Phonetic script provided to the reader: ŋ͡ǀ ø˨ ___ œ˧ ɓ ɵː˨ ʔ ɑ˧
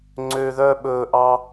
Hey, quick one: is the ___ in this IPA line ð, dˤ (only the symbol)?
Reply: ð